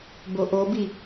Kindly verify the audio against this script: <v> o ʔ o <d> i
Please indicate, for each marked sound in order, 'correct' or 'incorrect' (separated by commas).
incorrect, incorrect